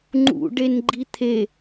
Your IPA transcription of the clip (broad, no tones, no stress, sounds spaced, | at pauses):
ŋ͡ǃ ṵ ɖ e n ɡ͡ǃ i t̪ʰ e